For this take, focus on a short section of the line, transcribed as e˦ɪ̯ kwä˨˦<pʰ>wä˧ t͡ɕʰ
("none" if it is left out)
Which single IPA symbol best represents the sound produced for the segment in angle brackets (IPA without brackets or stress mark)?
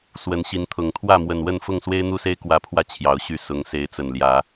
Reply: pʰ